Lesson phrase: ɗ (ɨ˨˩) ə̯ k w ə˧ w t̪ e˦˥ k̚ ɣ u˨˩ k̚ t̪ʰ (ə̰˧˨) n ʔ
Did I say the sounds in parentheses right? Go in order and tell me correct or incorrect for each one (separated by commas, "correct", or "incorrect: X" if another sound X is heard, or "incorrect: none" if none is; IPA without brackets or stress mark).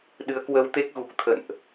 incorrect: ɨ˨˦, correct